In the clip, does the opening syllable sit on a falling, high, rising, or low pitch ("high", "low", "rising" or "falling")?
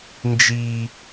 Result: low